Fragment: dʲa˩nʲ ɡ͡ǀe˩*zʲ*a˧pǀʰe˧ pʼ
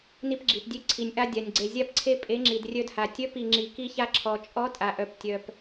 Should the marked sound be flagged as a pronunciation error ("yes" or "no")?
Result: no